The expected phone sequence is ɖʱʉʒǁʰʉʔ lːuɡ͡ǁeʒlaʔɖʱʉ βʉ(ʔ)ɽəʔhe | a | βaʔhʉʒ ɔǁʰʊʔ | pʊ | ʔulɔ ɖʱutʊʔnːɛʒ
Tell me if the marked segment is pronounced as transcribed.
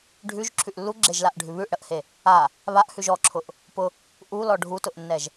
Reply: yes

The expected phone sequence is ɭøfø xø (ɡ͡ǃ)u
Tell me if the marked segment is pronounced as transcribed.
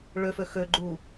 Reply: yes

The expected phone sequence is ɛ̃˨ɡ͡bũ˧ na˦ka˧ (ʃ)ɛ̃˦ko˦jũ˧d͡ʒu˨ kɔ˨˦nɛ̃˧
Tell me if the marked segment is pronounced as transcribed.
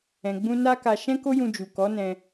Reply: yes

